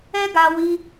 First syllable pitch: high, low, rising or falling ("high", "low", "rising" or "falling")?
high